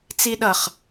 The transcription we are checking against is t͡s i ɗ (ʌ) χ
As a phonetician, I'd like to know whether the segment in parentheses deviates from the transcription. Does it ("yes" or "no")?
no